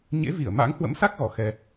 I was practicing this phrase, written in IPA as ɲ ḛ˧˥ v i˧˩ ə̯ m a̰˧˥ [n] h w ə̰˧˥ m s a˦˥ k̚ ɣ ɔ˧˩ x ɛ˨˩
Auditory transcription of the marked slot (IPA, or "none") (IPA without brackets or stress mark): ŋ